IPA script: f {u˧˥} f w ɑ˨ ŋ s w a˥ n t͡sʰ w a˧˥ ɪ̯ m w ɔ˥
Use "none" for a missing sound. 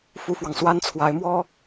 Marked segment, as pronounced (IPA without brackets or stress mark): u˥